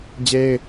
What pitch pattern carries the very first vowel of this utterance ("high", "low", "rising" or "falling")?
high